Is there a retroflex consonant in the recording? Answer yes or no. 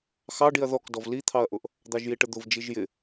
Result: yes